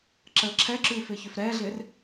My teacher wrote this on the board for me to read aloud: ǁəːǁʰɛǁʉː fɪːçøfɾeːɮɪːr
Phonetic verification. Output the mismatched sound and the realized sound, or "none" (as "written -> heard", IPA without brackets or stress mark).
eː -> ɛː